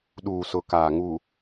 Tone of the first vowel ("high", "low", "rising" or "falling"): low